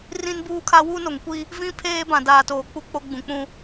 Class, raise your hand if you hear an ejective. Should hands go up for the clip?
no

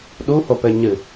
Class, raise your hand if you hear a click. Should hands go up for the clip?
no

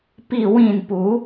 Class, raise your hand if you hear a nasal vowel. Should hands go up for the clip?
yes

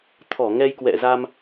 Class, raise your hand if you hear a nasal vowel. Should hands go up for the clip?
no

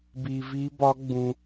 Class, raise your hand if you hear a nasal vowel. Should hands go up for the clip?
yes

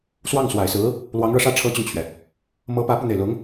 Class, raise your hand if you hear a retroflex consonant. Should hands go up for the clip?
yes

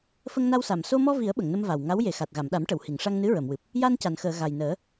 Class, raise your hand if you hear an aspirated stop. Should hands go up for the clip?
no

